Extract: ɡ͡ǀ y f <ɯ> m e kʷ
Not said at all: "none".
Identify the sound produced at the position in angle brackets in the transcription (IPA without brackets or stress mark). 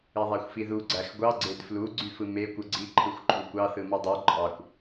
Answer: ɯ